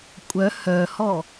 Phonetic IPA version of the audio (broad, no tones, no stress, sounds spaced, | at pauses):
kʷʼ œ h œ h ɔ